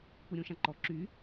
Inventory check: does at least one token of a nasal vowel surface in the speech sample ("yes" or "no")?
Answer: yes